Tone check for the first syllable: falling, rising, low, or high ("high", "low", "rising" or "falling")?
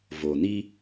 low